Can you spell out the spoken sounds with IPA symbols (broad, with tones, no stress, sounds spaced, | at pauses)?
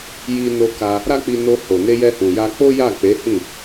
j i˧ n o˧ k a˧ | ɾ a˦ k͡p i˧ n o˧ h o˨ n e˧ j ɛ˧ h ũ˨ j a˧ k͡p o˦ j a˦˨ k͡p e˨˦ h ĩ˦˨